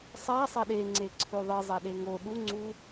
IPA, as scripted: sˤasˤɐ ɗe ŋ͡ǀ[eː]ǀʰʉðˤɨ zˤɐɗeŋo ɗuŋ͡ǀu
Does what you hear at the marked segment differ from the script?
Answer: yes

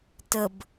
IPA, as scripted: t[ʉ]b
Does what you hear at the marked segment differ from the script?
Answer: yes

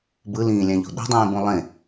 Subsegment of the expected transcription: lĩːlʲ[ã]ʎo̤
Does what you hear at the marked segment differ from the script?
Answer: no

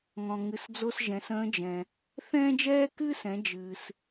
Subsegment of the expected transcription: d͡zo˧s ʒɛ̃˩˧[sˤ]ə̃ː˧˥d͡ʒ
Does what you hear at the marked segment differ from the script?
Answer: yes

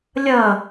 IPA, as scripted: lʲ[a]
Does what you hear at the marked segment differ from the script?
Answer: yes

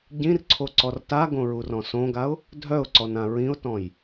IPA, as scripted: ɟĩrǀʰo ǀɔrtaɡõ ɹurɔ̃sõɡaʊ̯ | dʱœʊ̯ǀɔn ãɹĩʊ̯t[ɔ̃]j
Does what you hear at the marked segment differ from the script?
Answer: no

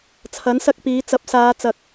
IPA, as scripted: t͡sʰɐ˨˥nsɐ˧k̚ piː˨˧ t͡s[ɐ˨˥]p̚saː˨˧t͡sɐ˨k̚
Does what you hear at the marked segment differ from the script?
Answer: no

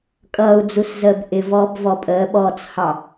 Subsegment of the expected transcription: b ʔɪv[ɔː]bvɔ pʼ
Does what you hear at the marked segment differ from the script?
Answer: no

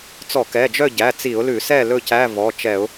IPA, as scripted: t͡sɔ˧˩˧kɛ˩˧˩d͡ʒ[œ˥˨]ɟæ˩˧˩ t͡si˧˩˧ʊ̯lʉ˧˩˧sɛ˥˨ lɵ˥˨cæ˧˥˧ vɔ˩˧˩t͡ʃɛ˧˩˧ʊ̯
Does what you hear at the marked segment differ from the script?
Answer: no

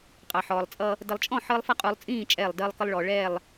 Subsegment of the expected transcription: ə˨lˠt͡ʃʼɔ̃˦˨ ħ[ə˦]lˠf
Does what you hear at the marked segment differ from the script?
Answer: yes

